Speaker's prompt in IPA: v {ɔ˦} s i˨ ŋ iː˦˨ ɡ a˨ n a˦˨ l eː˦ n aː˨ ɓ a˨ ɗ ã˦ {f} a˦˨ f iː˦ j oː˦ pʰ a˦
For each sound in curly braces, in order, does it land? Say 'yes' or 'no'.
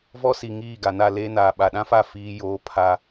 yes, yes

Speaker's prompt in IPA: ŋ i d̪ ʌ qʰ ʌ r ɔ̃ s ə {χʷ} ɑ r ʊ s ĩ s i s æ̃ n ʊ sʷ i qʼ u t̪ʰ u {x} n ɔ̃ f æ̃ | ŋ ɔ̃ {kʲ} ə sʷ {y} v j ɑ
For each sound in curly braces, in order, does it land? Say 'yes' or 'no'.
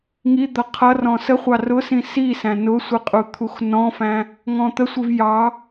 yes, yes, no, no

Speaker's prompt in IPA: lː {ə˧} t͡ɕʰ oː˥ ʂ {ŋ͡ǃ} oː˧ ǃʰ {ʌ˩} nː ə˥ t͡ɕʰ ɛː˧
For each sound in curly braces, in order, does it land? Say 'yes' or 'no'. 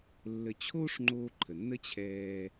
yes, yes, no

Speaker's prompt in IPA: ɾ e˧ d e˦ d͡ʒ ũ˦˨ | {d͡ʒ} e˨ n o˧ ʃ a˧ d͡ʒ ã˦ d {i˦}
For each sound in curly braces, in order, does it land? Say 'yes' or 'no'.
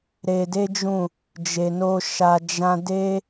yes, no

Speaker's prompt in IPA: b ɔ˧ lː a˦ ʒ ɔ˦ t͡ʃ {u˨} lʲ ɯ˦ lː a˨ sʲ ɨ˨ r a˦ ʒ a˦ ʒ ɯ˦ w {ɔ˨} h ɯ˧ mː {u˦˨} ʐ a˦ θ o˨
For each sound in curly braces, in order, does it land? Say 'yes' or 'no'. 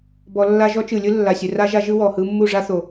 no, yes, yes

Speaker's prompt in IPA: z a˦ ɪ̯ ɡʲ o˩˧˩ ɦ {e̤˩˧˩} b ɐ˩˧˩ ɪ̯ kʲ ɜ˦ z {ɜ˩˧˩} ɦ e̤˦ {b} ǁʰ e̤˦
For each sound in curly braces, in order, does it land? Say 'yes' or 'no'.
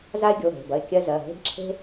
yes, yes, yes

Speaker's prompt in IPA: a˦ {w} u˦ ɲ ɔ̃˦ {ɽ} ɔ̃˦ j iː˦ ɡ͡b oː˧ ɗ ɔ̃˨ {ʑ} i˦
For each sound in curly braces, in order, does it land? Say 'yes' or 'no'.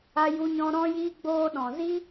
no, no, no

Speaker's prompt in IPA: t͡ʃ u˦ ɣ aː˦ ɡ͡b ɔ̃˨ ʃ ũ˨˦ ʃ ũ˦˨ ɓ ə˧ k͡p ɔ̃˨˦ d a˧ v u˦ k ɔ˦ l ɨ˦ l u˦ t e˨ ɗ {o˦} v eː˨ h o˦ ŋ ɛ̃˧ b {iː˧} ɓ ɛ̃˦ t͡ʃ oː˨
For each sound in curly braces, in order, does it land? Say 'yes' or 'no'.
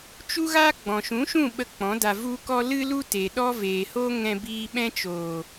no, yes

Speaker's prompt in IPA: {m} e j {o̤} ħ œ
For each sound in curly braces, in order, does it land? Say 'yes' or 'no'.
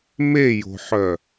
yes, yes

